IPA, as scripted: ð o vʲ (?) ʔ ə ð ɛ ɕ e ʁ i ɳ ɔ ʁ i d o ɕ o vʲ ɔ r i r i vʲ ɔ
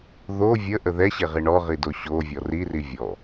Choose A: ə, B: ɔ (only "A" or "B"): A